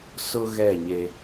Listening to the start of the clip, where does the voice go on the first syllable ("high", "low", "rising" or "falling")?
high